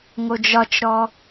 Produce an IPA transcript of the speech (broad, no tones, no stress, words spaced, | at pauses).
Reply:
ŋod͡ʒɒt͡ʃɾɔ